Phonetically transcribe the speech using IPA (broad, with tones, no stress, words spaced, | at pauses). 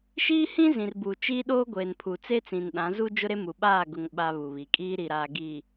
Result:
ʃiː˦hĩ˦ zĩ˨rbu˨ t͡ʃiː˦ɗoː˦ ɡʷeː˨npʰu˨ t͡se˦t͡sĩ˨nɗã˨˦zu˦ d͡ʒʊ˦ɾe˦ mu˨ɓaː˦˨ ɡʊ˦ŋɓa˦ βu˨βi˨kʼiː˦ ɾi˨ɾaː˨ ɡiː˨